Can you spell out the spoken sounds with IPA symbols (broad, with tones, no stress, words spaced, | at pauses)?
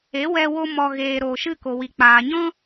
e˨˦wɛ˧wo˧ mɔ˨ ɣeː˨ ɾoː˨ʃɨ˦˨ko˨ wi˨k͡paː˨ɲɔ̃˦